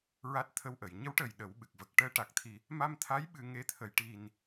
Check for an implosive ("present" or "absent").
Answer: present